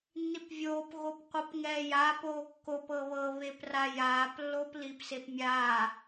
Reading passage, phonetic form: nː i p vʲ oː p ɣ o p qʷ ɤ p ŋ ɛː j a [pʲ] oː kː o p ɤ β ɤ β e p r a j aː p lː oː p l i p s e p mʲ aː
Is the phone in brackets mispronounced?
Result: yes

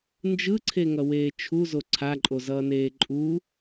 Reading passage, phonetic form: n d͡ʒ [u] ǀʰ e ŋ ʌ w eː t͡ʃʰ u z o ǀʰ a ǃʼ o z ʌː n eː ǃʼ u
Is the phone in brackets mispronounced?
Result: yes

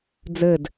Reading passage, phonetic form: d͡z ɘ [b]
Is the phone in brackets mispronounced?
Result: yes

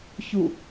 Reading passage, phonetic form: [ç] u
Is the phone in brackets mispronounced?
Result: no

